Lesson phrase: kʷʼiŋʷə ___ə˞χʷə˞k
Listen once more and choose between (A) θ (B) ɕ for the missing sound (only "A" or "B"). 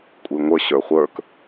B